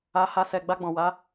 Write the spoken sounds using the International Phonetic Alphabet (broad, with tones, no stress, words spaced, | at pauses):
a˧ha˧sɛ˨ ɡ͡ba˧ɡ͡bɔ̃˨wa˨˦